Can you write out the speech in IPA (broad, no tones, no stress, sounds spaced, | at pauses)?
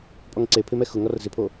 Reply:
pʼ ɔ ŋ ǀ e pʰ ɪ m ɛ x ʊ ŋ ɔ r z ɪ pʰ o